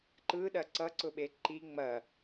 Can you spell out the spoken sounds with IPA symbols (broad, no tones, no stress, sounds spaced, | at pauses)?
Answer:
ǃ ɯ ɗ ɐ ǀ ʌ ǀ ʊ ɓ e ǃ i ŋ͡m ɐ